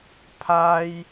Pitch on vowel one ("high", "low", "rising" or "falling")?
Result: high